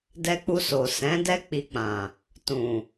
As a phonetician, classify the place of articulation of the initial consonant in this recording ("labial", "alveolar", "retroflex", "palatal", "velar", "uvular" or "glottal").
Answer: alveolar